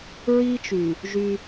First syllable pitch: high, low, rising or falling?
high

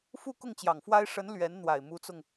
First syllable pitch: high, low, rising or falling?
falling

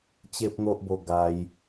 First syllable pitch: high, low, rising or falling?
high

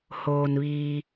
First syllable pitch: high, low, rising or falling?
low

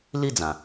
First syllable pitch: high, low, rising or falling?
falling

